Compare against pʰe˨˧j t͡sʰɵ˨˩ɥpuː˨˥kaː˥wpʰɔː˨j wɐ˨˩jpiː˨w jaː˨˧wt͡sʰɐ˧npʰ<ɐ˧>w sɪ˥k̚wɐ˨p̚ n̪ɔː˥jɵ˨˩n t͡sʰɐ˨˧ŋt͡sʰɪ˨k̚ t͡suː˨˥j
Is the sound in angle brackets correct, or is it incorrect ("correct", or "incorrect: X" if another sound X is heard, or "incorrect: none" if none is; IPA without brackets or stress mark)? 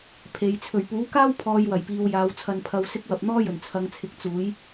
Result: correct